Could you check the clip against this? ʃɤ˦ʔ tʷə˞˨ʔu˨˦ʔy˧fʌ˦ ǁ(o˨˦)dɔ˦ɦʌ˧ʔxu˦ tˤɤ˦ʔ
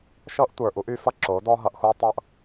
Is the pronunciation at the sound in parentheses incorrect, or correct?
correct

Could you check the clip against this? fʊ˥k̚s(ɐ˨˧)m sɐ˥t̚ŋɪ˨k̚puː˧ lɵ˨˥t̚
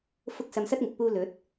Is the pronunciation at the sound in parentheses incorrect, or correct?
incorrect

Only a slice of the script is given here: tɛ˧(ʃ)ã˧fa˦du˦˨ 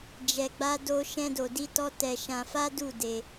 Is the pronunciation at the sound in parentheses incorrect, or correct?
correct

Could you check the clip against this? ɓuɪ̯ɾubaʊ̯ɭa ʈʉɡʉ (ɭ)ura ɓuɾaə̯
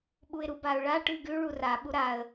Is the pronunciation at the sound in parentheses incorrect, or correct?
correct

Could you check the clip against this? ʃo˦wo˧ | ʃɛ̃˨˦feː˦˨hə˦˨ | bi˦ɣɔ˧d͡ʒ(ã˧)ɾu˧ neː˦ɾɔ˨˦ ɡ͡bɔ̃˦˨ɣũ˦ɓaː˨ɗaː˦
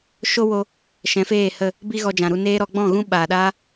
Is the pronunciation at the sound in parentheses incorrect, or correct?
incorrect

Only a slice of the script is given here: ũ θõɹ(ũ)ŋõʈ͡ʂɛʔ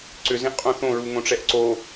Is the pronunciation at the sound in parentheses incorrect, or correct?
incorrect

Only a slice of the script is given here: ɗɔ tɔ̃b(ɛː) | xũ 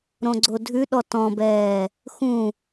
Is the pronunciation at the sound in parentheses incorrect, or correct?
correct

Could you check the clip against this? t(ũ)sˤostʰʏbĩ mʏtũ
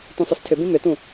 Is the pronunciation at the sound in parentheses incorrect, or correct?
correct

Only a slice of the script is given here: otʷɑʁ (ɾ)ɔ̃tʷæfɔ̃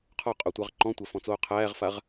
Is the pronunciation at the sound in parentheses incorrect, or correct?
incorrect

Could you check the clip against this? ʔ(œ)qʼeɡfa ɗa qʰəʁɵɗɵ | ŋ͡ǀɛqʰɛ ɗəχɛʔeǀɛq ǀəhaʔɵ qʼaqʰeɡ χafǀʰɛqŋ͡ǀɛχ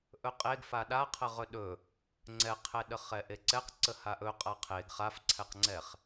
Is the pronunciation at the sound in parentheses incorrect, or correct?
incorrect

